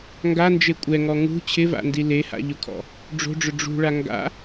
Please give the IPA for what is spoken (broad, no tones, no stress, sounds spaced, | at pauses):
ŋ ɡ a n d͡ʒ e kʷʼ ɛ ŋ ɔ ŋ ṳ t͡ɕʰ ɪ v a̰ n d i l e h a̰ ʎ ʊ kʰ ɔ̰ | ɖ͡ʐ o̤ ɖ͡ʐ ʊ ɖ͡ʐ ṳ ɭ a ŋ ɡ a̰